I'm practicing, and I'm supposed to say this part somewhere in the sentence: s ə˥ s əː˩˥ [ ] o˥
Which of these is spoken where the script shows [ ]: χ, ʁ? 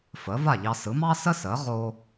ʁ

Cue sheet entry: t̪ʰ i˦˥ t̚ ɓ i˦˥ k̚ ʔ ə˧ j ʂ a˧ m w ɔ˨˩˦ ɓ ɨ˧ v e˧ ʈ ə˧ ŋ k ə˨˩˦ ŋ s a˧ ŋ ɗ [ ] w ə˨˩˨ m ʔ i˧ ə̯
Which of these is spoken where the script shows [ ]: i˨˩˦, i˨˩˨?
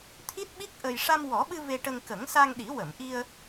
i˨˩˦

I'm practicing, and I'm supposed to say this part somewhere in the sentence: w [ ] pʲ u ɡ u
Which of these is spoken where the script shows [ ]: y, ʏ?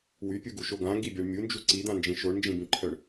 y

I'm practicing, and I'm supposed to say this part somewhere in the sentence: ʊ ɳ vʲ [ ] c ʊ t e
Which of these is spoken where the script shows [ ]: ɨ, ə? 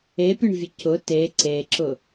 ə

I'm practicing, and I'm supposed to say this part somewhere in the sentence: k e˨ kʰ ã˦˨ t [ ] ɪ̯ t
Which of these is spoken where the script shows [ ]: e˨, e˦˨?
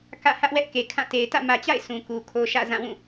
e˨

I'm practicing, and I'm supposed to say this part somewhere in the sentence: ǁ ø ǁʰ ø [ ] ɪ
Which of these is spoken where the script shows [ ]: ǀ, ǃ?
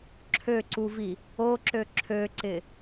ǀ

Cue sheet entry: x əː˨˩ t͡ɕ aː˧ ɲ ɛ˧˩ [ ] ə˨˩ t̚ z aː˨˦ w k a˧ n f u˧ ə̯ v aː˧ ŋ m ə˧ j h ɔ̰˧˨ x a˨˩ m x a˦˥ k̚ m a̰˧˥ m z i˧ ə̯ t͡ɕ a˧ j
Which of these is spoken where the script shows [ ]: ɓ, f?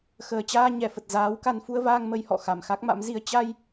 f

